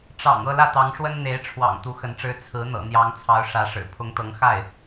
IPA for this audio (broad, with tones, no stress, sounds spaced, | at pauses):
ʈ͡ʂ ɑ̰˨˩ ŋ ɤ˥˧ l ä˥˩ t̪ ɑ˧˥ ŋ ʂ w ə˥ n n̪ e˧˥ ɪ̯ ʈ͡ʂʰ w ɑ̰˨˩ ŋ t̪ u˧˥ x ə˧˥ n ʈ͡ʂ ɻ̩˥ t͡sʰ ɹ̩˧˥ n̪ ɤ̰˨˩ n̪ j ɑ˧˥ ŋ t͡sʰ ɑ˧˥ ʊ̯ ʂ ä˧˥ ʂ ɻ̩˨˩ pʰ ʊ˧˥ ŋ t̪ ɤ˧˥ ŋ x a˥˩ ɪ̯